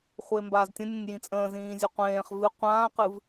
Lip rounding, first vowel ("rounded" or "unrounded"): unrounded